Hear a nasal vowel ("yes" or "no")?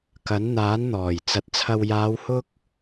no